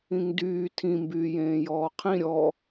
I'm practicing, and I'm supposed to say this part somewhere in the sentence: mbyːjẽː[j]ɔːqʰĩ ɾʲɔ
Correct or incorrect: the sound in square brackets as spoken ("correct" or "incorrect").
correct